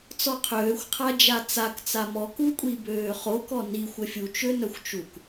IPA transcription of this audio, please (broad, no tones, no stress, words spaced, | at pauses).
t͡sɔqʰøːxʷ qʰad͡ʒat͡sak t͡samɔ kukʷʼibøːχok ɔni xʷəfʲu t͡ʃønœxʷt͡ʃuk